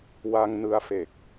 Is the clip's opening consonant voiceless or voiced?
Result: voiced